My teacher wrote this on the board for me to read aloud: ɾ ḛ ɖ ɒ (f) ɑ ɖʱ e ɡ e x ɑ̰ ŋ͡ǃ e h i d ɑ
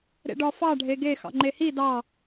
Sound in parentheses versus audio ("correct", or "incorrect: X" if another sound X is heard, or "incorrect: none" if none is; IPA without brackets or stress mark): correct